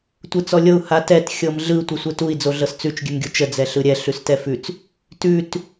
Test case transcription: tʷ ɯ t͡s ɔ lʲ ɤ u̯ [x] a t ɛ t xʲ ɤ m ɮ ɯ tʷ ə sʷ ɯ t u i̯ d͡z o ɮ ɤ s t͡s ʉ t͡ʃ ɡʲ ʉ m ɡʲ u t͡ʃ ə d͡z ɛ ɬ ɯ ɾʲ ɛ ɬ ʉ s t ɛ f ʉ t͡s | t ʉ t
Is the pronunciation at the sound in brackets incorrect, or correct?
incorrect: h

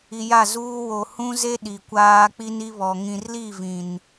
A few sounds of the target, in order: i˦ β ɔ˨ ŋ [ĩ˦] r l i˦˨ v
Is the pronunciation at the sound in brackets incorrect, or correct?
incorrect: ĩ˨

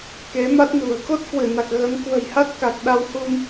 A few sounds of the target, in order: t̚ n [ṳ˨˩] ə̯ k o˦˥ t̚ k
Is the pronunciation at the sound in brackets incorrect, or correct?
correct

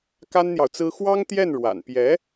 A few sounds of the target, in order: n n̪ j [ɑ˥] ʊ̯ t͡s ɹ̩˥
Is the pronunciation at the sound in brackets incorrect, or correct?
incorrect: ɑ˨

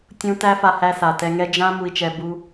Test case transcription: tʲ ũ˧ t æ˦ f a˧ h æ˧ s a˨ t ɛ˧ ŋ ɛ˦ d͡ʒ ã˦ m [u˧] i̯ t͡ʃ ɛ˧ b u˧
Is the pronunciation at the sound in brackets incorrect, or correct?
correct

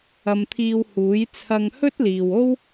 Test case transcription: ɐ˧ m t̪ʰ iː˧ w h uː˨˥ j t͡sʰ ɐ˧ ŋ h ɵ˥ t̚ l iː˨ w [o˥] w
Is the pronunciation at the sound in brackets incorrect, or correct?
correct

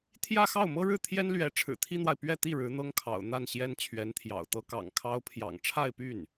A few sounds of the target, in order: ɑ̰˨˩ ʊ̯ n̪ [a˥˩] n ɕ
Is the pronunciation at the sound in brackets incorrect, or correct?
correct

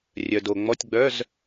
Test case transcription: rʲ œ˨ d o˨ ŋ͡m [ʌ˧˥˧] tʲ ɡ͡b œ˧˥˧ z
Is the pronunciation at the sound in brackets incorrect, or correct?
incorrect: ɔ˧˥˧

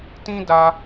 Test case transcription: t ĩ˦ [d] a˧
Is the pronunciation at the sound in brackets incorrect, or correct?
correct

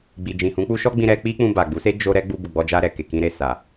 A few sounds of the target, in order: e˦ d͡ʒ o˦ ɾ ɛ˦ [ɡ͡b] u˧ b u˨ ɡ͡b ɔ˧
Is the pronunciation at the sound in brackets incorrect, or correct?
correct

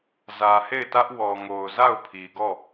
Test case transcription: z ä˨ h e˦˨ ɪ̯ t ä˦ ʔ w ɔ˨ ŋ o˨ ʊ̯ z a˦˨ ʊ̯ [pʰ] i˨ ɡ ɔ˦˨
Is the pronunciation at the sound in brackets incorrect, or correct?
correct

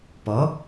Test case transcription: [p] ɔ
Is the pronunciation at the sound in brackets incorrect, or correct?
correct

